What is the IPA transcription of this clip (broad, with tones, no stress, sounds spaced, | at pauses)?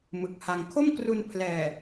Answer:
m ɯ˨˩ k̚ h a˧ ŋ kʰ o˥˩ m k r u˧ n pʰ l ɛː˨˩